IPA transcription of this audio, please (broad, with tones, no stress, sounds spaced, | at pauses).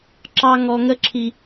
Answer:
ǁ ɑ˧ ŋ ɔ˨ ŋ ə˧ ǁʰ i˨